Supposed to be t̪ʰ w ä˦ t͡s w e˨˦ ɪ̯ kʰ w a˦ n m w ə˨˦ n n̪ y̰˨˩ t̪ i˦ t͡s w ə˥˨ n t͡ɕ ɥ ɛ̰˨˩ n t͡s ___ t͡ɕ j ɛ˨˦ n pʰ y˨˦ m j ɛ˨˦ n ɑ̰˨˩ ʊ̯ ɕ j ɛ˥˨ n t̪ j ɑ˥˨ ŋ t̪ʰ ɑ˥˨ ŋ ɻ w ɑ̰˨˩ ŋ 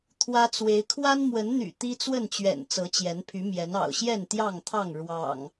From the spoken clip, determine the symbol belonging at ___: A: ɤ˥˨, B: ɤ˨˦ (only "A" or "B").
B